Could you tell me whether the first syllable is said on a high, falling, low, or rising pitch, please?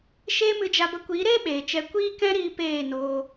high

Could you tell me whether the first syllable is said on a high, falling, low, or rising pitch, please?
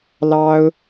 high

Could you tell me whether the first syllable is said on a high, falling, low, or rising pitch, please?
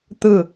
falling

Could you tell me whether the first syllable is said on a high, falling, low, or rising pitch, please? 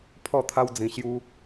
falling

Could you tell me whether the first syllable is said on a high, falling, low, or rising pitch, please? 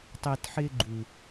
low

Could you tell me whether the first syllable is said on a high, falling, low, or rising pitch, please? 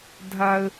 high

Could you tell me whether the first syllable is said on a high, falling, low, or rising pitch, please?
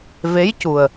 rising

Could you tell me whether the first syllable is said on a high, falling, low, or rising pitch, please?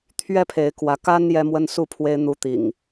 falling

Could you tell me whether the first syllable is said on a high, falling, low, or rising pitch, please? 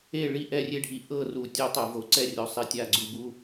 falling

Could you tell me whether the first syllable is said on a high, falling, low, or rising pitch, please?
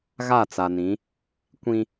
falling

